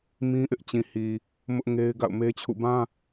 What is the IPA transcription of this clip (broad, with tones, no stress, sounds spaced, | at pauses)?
m ĩ˦ ʔ ɪ˦ ʔ t͡ɕ ĩ˨ h i˨ | m ʊ˦ ʔ ŋ e˦ ɪ̯ ɡ a̰˦˨ ʊ̯ m e˦ t͡ɕʰ ṵ˦˨ b ã˦